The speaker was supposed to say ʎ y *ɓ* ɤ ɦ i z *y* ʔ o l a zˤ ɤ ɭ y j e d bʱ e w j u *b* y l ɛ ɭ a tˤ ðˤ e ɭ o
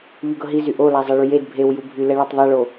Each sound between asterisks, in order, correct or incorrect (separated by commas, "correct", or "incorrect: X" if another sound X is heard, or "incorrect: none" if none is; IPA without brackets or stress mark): incorrect: ɡ, correct, incorrect: bʱ